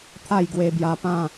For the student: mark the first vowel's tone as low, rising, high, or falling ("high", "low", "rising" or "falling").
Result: falling